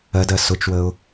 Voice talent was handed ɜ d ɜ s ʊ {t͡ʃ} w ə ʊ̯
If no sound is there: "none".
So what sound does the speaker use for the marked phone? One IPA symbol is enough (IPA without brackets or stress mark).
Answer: t͡ʃ